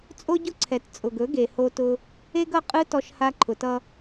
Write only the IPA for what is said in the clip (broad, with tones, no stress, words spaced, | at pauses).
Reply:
t͡sʼo˦ɟʊ˦ǀʰɛ˨t t͡sʼʊ˨ɡɵ˨˦ɡe˨ ho˧tʊ˧ | e˦ɡʌ˦qʼɯ˦ tɔ˧ʃha˧ǃʰʊ˨tʌ˧